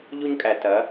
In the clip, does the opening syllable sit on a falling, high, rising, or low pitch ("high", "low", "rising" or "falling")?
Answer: high